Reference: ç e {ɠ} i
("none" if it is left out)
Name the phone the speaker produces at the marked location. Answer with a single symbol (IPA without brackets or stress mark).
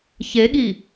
ɠ